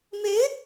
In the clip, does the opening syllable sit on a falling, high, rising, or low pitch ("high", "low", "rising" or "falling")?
rising